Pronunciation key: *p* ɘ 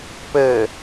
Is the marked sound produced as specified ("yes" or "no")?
yes